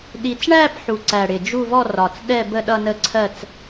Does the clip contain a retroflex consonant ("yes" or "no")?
yes